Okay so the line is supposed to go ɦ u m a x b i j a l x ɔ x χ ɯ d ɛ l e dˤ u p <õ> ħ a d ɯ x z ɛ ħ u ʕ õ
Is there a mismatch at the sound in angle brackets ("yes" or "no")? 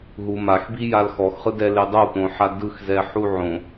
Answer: no